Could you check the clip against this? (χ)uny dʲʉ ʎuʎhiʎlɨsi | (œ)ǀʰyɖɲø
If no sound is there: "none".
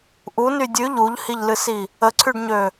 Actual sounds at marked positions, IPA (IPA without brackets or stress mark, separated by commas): ʔ, ə